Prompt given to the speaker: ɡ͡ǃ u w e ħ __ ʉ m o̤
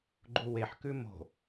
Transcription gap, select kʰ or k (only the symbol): k